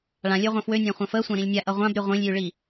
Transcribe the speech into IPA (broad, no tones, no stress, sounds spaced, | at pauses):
ɭ ã lʲ ø ʁʷ ã f w ø nʲ ã χʷ ã f ə sʷ ã ɾ ĩ lʲ nʲ a ʔ ʌ ʁʷ ã b ɾ y ʁʷ ĩ lʲ j y ɭ i